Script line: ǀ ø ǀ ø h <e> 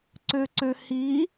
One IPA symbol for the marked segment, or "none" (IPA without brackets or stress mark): i